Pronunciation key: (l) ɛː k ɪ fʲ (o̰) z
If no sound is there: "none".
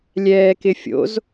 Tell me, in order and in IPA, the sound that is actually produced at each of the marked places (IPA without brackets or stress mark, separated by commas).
lʲ, o̰